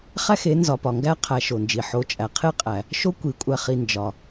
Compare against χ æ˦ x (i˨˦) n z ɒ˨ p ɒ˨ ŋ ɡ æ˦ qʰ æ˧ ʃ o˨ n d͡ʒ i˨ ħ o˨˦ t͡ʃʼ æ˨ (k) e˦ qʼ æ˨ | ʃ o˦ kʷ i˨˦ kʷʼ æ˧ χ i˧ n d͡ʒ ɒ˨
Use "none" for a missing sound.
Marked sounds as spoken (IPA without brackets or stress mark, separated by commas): e˨˦, qʰ